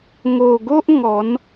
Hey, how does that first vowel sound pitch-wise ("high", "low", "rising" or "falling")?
low